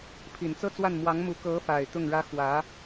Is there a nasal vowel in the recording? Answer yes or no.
no